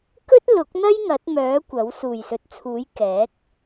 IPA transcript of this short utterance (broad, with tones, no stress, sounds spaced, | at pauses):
k ɵ˥ t̚ l ʊ˨˥ k̚ n̪ ɐ˥ j ŋ ɐ˨˥ t̚ m œː˨˥ kʷ ɐ˨˥ w s uː˨˩ j s ɵ˨˥ t̚ t͡sʰ uː˨˥ j k ɛː˨˥ k̚